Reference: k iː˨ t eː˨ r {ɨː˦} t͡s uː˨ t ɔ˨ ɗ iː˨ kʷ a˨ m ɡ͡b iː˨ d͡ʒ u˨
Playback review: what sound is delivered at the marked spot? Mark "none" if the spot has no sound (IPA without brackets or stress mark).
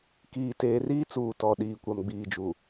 iː˦